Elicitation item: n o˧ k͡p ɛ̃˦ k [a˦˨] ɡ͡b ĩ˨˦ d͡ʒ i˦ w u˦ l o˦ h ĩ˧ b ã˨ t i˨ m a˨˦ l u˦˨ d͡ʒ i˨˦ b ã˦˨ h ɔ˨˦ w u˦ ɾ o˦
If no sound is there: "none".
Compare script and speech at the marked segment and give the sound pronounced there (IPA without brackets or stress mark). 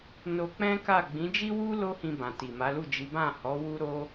a˦˨